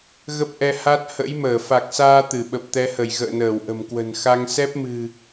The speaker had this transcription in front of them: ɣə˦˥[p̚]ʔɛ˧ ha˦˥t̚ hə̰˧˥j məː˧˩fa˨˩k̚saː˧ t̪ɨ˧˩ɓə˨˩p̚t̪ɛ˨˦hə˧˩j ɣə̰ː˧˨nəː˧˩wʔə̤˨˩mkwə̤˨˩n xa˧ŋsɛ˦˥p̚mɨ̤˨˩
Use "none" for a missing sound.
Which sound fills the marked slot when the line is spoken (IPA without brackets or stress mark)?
p̚